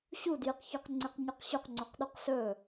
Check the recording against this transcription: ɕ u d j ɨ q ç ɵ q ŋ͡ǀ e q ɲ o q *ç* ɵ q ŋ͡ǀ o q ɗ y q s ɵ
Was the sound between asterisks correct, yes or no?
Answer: no